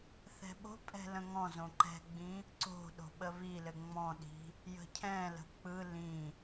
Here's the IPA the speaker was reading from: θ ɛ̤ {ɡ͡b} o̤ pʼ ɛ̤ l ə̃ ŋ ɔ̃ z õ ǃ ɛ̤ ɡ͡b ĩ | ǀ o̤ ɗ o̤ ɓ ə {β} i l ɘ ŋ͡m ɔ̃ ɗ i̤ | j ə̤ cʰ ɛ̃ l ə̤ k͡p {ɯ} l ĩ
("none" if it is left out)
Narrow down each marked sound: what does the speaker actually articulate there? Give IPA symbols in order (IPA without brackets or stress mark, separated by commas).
ɓ, β, ɯ